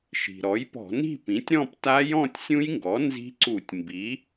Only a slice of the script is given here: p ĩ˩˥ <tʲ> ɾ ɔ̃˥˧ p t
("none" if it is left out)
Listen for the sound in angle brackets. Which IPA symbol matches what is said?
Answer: tʲ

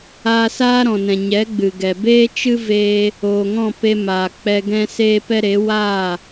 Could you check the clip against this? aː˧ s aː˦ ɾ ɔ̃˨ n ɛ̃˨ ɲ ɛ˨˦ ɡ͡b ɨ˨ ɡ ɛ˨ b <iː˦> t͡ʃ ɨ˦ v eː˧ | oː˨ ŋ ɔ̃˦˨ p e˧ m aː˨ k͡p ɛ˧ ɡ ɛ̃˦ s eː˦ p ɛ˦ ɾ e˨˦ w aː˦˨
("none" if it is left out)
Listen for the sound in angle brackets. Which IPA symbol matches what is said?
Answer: eː˦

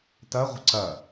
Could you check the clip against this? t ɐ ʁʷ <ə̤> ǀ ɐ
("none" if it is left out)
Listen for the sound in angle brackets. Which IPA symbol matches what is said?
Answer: ə̤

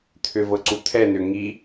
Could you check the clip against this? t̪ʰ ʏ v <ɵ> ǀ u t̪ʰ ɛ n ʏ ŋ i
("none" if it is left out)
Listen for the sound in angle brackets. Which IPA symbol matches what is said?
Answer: ɤ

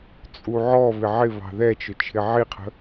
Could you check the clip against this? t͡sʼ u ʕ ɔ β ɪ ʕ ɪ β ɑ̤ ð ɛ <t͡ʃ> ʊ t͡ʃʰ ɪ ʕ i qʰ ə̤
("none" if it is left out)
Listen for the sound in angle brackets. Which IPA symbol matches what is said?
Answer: t͡ʃ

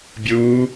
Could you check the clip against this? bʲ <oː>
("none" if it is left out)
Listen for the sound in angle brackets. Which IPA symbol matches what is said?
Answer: uː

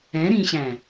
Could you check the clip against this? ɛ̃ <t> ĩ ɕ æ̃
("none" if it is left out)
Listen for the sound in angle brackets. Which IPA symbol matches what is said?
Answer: ɾ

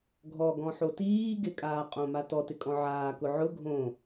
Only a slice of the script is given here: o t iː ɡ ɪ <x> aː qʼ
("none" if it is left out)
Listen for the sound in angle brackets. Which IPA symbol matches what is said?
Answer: kʼ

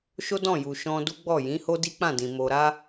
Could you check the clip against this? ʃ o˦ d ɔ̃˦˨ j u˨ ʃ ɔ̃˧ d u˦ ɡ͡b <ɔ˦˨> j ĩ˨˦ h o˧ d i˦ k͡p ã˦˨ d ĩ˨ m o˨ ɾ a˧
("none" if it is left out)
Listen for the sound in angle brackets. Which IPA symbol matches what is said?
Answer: ɔ˦˨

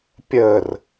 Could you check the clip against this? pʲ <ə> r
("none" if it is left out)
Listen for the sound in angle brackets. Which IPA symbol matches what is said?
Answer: ə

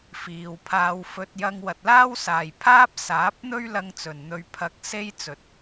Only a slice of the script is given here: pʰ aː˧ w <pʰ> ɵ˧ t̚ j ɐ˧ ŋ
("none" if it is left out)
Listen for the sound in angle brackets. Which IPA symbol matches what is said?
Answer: f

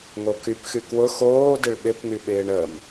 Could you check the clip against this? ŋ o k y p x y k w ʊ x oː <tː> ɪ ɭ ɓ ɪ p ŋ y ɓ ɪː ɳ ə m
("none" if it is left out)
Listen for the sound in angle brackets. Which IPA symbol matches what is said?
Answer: d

